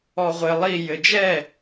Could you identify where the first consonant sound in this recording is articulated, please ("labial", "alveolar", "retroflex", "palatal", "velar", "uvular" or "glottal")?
uvular